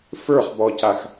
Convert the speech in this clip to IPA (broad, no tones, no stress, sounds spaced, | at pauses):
f ə˞ χ b ɔ c a x